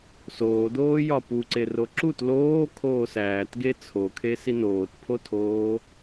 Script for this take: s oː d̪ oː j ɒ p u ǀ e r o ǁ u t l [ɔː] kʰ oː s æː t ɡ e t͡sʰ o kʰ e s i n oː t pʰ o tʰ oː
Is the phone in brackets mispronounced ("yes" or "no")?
yes